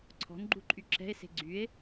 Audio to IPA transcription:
ǀʰ ɔ̤ n ɡ͡ǃ u ǃʼ y ǁ ɛ̤ e̯ s e̤ ɡ͡ǀ y e̯

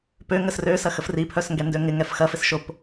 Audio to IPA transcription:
p ø ŋ ə s r ø s ɐ x ə f r i pʰ œ s ŋ ɡ ɛ n d ø ŋ ɪ ŋ ɛ f x ɐ f ɪ s ʃ o p

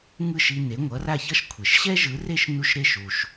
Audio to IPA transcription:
ŋ ɯ˥˩ ʃ i˧ n e˩˥ ŋʷ ʌ˩˥ r a˥˩ ç ʌ˥ ʃ kʷʰ e˩ ʃ ɕ ɛ˥ ʒ ɯ˩˥ r e˥˩ ʃ n u˥˩ ʃ ɾ e˥˩ ʃ u˩ ʃ

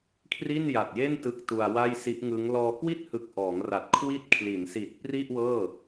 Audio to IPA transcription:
kʰ r i˥˩ n j a˨˩ t̚ j e˥˩ n t ɯ˦˥ k̚ t u˧ a̯ w a˥˩ j s i˦˥ ʔ ŋ ɯ˦˥ ŋ l ɔː˧ k w i˥˩ t̚ h ɯ˨˩ k̚ ʔ ɔː˩˦ ŋ r a˨˩ t̚ kʰ w i˦˥ t̚ kʰ l i˩˦ n s i˨˩ t̚ p r i˥˩ ʔ w ɤː˥˩

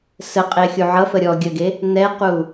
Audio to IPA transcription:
s ə qʼ e xʲ u ʕ ʌ f ə ɾʲ ɔ ɡʲ ə ɡ e | n̪ ɛ q u

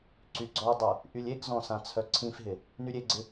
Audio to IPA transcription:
ǀ y ɡ͡ǀ ɔ dˤ y | ʔ y lʲ e ɡ z ɔ̃ s ã t͡sʰ œ ǀʰ ĩ f ɦ ɪ | n y ɾʲ e ɡ͡ǀ ɪ

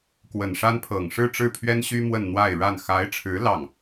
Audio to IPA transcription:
k w ə˨˩ n ʂ a˥ n pʰ ɤ˨˩ ŋ ʂ ɻ̩˥˧ ʈ͡ʂ ɻ̩˥˩ pʰ ɥ ɛ˥ n ɕ y˥ m w ə˥˧ n n̪ w a˥˧ ɪ̯ ɻ a˥˩ n x a˧˥ ɪ̯ ʈ͡ʂʰ ɻ̩˧˥ l ɑ˥˩ ŋ

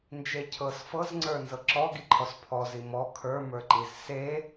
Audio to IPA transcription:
n d͡ʒ e cʰ ɤ s f ɤ z ŋ͡ǀ ə˞ n z ɤ ǁ ɔ ɡ i ǃʰ ɔ s pʰ ɔ z i m ɔ kʰ ə˞ m ə˞ ǃ i z s e

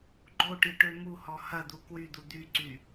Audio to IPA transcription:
ɡ͡ǃ o ʈ i ʈ ø m u h ɔ h ɐ d̪ u k w y d̪ u d̪ y ǀ y

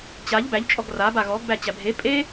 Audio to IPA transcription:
t͡ɕ a ʎ b æ ʎ t͡ʃʼ ɔ ɡ r a b a ɣ ɔ ɡ b æ t͡ɕ æ bʱ e pʼ e

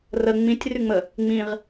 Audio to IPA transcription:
r ə ŋ͡m ĩ tʲ r y ŋ͡m ə | ŋ͡m ĩ ʁ

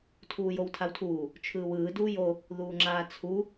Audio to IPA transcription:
tʰ uː j o w tʰ a w tʰ uː | t͡ʃʰ ɯː w ɯː d uː j o | ð uː ŋ͡ǁ aː t͡sʰ u

